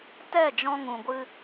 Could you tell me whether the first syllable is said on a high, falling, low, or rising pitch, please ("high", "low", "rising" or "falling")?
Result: falling